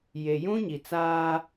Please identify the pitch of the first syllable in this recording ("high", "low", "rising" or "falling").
low